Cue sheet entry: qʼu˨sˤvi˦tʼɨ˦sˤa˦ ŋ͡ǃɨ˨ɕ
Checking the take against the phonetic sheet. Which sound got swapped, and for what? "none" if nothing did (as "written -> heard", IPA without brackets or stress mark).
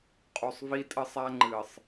ɕ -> sˤ